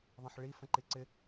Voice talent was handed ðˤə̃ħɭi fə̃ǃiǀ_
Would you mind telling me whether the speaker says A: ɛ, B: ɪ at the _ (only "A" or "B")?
B